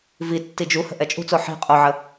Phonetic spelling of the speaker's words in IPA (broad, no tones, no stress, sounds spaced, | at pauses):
v i tː i d͡ʒ u h ə̤ ʔ ɛ t͡ʃʼ ṳ t͡s o ħ i̤ qʼ o ʕ ə